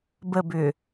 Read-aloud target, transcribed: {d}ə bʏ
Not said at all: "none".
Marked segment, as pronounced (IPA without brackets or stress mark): b